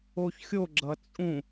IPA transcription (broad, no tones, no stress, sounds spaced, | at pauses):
o ç xʲ o ɡ͡ǁ ʌ t͡sʼ ũ